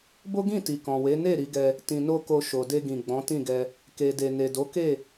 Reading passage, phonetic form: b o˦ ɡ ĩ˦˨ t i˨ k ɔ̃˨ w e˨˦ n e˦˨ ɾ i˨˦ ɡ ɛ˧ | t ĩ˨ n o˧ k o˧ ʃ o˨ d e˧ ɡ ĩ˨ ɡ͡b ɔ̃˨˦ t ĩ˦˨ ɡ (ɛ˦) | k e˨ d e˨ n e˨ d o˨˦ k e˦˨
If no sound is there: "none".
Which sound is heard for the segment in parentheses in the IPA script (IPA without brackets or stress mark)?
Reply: ɛ˧